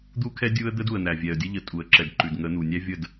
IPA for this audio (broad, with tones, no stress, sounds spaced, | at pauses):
d̪ u˦ kʰ ɛ˦ dʲ u˦ ə̯ d̪ ə˦ d u˨ ə̯ n̪ æ˨ vʲ ɛ˨ ə̯ dʲ ə˦ ʎ ə˨ tʼ u˨ ə̯ ǁ ɛ˨ d ǃ ʉ˨ d ŋ ə˨˦ n̪ u˨ nʲ æ˦ vʲ ə˦˨ d